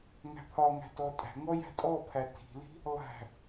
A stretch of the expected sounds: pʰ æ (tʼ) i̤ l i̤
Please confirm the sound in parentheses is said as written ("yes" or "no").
no